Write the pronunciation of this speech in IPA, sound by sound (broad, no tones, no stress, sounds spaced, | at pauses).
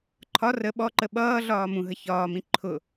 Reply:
ǃʰ ɒ r ə ɓ ɔ ǃ ə ɓ ʌː ɮ ɒː m ũ ɦ ə ç ɒː m ĩ ǃʰ ʊ